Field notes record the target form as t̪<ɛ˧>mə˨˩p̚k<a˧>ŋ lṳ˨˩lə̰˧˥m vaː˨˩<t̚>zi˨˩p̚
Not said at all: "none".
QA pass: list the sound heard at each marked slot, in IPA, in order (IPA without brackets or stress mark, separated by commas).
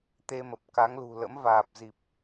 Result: e˧, a˨˦, p̚